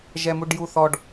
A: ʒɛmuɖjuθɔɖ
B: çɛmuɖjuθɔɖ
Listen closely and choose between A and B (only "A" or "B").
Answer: A